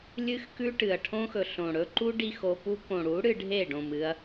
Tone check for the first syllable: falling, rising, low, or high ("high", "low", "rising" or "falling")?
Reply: high